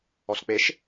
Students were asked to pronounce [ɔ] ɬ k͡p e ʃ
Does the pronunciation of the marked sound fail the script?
no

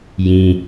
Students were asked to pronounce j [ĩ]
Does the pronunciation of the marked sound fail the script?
no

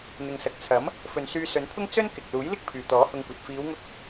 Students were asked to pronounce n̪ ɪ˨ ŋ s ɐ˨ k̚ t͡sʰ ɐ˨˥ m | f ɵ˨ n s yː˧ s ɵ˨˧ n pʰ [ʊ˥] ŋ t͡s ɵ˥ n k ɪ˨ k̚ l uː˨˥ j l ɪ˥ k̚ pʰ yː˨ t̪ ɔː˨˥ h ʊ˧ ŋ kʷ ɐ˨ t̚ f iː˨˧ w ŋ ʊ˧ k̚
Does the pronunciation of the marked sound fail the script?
no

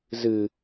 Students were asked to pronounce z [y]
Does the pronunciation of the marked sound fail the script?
yes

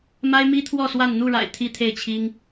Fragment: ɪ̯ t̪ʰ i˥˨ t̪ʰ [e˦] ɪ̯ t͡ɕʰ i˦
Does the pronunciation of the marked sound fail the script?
yes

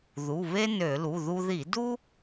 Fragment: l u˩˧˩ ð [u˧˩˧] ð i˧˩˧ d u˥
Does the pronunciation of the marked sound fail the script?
yes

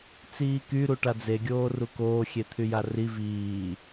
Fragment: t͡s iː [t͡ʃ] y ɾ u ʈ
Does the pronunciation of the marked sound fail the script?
yes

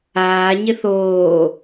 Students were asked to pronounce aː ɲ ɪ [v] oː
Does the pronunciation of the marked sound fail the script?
yes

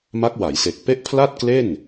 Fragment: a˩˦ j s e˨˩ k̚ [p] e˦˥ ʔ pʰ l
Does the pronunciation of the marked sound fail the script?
no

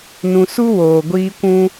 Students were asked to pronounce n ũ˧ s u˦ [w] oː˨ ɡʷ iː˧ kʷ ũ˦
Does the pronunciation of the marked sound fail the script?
no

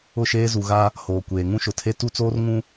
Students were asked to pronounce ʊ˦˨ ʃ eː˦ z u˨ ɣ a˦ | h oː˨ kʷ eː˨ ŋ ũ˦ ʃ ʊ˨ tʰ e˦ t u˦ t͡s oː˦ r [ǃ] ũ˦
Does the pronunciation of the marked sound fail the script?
yes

